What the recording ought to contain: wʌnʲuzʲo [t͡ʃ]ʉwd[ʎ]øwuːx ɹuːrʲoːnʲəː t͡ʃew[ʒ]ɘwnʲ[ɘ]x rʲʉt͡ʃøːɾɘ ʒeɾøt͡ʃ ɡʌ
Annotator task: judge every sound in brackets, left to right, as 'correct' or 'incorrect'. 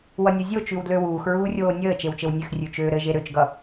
correct, incorrect: l, incorrect: t͡ʃ, incorrect: ø

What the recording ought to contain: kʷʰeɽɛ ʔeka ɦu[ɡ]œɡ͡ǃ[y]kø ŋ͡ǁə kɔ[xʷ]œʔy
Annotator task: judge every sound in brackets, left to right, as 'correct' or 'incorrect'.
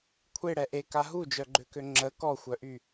incorrect: d͡ʒ, incorrect: ø, correct

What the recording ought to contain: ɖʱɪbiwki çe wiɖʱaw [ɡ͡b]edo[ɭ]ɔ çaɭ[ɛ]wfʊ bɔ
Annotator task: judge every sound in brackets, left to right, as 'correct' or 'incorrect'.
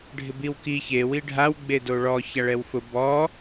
correct, correct, correct

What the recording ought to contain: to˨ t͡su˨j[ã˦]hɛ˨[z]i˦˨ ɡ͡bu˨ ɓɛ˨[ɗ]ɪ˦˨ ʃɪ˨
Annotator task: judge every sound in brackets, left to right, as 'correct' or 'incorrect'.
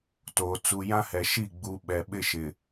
correct, incorrect: ʃ, incorrect: ɓ

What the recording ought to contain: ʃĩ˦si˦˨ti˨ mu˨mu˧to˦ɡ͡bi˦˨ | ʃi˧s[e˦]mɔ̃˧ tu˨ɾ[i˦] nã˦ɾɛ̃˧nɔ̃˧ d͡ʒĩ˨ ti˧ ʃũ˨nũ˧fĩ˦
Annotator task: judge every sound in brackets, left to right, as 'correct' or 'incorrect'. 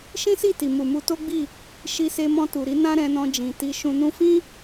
incorrect: e˧, incorrect: i˨˦

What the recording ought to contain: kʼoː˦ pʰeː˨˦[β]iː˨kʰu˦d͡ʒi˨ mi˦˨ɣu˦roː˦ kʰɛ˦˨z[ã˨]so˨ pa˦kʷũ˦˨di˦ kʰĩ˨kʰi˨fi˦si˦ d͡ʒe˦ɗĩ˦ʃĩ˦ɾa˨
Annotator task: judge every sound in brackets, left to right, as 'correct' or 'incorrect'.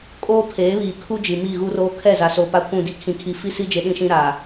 correct, incorrect: a˨

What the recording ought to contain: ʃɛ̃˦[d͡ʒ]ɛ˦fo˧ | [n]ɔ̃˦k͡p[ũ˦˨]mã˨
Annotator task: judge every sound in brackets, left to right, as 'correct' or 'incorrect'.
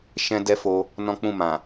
incorrect: d, correct, correct

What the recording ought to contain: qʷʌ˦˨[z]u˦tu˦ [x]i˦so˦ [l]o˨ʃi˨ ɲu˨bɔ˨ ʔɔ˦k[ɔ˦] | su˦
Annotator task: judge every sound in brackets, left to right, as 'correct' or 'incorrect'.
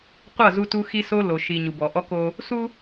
correct, correct, correct, incorrect: o˦

